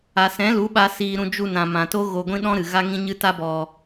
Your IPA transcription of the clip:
a˨ s ɛ̃˨˦ l u˨˦ ɓ a˧ s iː˧ ɾ ũ˧ d͡ʒ u˧ n ã˨ m ã˨ t o˦ ɣ o˧ ɡʷ ĩ˦ ɗ ɔ̃˦ ɾ ɨ˨ ɣ a˦ ŋ ĩ˦ ɲ ɨ˦ t a˦ b ɔ˧

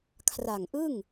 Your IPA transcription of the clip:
kʰ r a˨˩ ŋ ʔ ɯ˥˩ ŋ

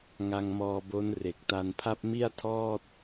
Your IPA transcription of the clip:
ŋ a˧ ŋ m ɔː˧ b o˦˥ n r e˨˩ k̚ t a˧ n pʰ a˥˩ p̚ m i˥˩ a̯ tʰ ɔː˥˩ t̚

